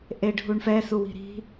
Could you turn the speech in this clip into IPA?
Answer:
ʔ e ɖʱ u ɳ f ɛ s u w i̤ ɾ i̤

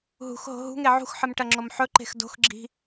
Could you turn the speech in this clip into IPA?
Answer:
ɦ ṳ x ɦ o̤ ɦ ṳ ŋ e ʕ ṳ x ħ ɨ m ʈ ɐ ŋ͡ǁ o m ħ ɵ ǃ e̤ x d o̤ x ɡ͡ǁ i̤

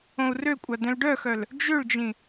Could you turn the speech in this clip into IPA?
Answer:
õ u̯ r ø kʷʼ a d ɛ̃ l ɖ œ x œ l | d͡ʒ ø ɭ d͡ʒ ĩ

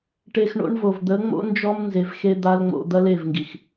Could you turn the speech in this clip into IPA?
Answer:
ʈ e˧ x ɳ o̰˦ ɳ v o˨ v d̪ ə˨˦ ŋ͡m o̰˦ n d͡ʒ ɔ˦ m n z e˧ v x e˦ d̪ a˦ l ŋ͡m o̰˧ d̪ ɐ˦ l e˦˨ v ŋ ɡ i˨ x

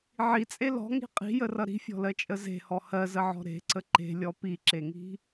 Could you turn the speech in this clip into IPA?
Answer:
ʕ i t͡sʼ e l ɔ̤ ŋ i̤ qʼ i̤ j ə r ʌ ɾ i̤ fʲ ɔ̤ l ɜ t͡ʃʼ ə z e̤ h ɔ h ɜ z ə ʕ ɔ̤ ɾ e̤ ǀ ə ǃ e̤ lʲ ɔ p i ǁ e ŋ i̤

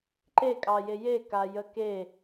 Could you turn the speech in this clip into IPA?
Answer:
ǃ e kʼ ɑ j e j e k a j ə k e

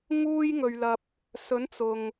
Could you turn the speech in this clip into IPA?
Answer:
ŋ uː˥ j ŋ ɵ˧ ɥ l ɐ˧ p̚ | s ɵ˨˥ n t͡s ʊ˨ ŋ

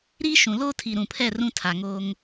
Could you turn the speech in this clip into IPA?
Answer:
ɾ i˦ ʃ ũ˨ l oː˦ tʰ i˨ ɾ ũ˨ pʰ ɛ˦˨ r ũ˦ tʰ a˨ ŋ oː˦ ŋ

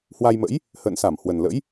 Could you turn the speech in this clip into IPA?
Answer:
h w a˧ j m ə̰˧˥ j | h ə̰ː˧˨ n s a˧˩ m h w ə˨˩ n l ə̰˧˥ j

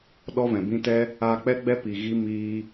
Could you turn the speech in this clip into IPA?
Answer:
ɗ ɔ˦ v ɛ̃˨ b ĩ˦ t ɛ˦ | aː˧ k͡p ɛ˦ ɡ͡b ɛ˦ p i˨ ɣ i˧ m iː˧

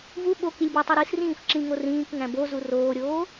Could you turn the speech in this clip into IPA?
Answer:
v u ɓ o k i lʲ b i tˤ i ɾ i s r ĩː f ǁ ĩ ŋ o r ĩː k ŋ æ̃ b o z u r oː ɾʲ oː

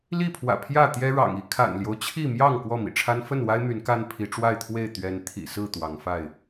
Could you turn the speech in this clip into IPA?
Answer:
l i˥˨ pʰ w ä̰˨˩ pʰ j ä˥˨ t̪ j ɛ˦ ɻ ɑ̰˨˩ ŋ i˦ kʰ a̰˨˩ n l j o˦ ʊ̯ t͡ɕʰ i˥˨ m j ɑ˥˨ ŋ k w ɔ˥˨ m ḭ˨˩ ʈ͡ʂʰ a˦ n f ə˥˨ n w a˦ ɪ̯ m y˨˦ n k a˦ n pʰ i˨˦ ʈ͡ʂ w a˥˨ ɪ̯ t̪ʰ w e˥˨ ɪ̯ t̪ ɥ ɛ˨˦ n t̪ʰ ḭ˨˩ s ɹ̩˥˨ t̪ w ɑ˨˦ ŋ f a˥˨ ɪ̯

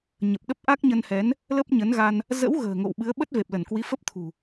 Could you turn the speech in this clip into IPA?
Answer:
ɲ ə˨˩ p̚ ɗ ə˦˥ p̚ ʔ a˦˥ k̚ ɲ ə˧ n h ɛ˨˦ n | l ə˦˥ p̚ ɲ ə˨˦ n ɣ a˧ n | z ə̰˧˥ w ɣ ə̤ː˨˩ ŋ o̰˧˨ w ɓ ɨ˨˦ ə̯ ɓ ə˦˥ t̚ v e˨˩ p̚ l ə˧˩ n k w i˨˦ f ə˦˥ p̚ t̪ʰ ṳ˨˩

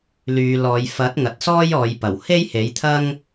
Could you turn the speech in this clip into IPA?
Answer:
l yː˨˧ l ɔː˨˧ j f ɐ˨˥ t̚ ŋ ɐ˨ t̚ s ɔː˥ j ɔː˨˧ j p ɐ˨˩ w h e˥ j h e˨˥ j t̪ʰ ɐ˥ ŋ

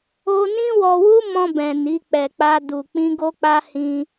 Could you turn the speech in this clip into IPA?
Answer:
o˦ n ĩ˦ w ɔ˧ w u˦ m ɔ̃˧ b ɛ̃˨ n i˨˦ k͡p ɛ˧ k͡p a˦ d u˧ k͡p ĩ˦ ɡ o˦ k͡p a˦ h ĩ˦

